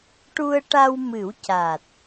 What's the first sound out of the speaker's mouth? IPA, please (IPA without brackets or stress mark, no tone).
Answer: ʈ